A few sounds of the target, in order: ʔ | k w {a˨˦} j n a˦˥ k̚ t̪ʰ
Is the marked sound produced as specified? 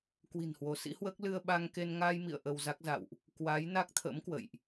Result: yes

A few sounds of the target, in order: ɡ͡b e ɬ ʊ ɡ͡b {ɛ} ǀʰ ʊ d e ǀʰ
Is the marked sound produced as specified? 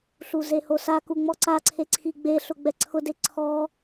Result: yes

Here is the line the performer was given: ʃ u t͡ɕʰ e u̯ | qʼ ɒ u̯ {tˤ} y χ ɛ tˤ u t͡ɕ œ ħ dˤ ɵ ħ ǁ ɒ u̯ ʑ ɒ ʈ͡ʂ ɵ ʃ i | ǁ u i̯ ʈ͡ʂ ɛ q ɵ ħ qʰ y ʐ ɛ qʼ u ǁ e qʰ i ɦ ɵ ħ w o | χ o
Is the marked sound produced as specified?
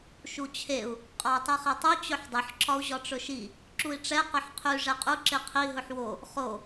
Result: yes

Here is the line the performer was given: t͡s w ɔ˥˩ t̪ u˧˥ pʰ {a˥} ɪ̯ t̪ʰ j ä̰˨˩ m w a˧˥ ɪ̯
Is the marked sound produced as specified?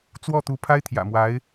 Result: yes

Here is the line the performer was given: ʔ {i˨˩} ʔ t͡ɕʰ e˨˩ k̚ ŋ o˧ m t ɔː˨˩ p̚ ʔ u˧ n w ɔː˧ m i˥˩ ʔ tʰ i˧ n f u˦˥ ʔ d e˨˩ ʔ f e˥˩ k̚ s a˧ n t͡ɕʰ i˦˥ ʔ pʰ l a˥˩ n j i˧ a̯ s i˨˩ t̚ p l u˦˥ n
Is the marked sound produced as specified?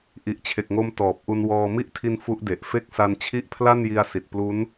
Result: yes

